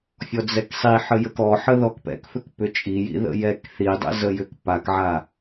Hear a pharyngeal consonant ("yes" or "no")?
yes